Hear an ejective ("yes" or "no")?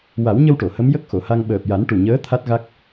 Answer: no